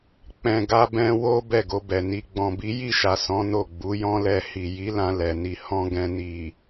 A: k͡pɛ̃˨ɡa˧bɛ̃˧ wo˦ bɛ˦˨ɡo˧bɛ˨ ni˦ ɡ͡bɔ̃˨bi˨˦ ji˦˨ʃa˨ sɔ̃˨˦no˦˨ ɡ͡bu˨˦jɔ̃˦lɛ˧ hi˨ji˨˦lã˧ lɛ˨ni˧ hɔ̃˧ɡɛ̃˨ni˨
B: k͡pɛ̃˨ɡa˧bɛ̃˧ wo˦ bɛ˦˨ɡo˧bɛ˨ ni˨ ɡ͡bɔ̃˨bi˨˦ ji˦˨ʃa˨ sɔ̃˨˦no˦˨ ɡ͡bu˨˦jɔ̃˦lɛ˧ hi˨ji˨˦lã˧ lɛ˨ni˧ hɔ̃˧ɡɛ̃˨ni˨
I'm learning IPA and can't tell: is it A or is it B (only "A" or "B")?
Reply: B